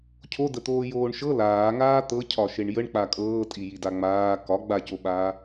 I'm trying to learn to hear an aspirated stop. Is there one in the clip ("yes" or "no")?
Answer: yes